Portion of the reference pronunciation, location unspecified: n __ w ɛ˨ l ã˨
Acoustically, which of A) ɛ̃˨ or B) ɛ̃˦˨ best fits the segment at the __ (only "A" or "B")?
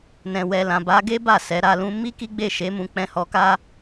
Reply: A